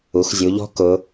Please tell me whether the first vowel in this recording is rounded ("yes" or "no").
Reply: yes